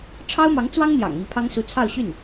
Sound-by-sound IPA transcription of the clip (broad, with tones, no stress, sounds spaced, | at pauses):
ʈ͡ʂʰ ɑ˥ ʊ̯ m ɑ˧˥ ŋ t͡s w ɑ˥ ŋ n̪ j ɑ̰˨˩ ŋ m i˧˥ pʰ ɑ˥ ŋ s u˧˥ t͡sʰ ɑ˥˧ ʊ̯ ɕ y˥˩ n